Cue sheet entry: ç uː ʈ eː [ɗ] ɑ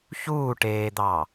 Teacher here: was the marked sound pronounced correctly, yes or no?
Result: no